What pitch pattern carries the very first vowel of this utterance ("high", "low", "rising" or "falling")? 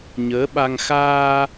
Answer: rising